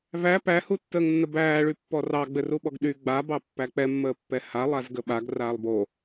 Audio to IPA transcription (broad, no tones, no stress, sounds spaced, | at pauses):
v æ p æ h u tː əː ŋ nː ə b æː ɭ y pː ɔ r ɑ ɡ͡b ɘ r u ɓ ɔ ɡ ɗ y ɡ͡b a b ɑ pː æ k͡p ɛ mː əː pː ɛ h a lˠ a z ɡ ə ɓ a ɡ r aː lˠ b o